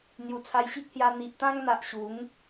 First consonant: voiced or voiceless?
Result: voiced